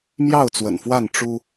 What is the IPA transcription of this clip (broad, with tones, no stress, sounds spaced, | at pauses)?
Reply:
m j ɑ˥˨ ʊ̯ t͡s w ə̰˨˩ n f w a˥˨ n ʈ͡ʂ u˦